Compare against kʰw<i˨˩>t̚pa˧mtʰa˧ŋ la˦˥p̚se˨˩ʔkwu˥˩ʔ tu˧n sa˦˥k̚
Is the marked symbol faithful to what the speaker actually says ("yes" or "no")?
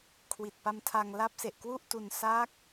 yes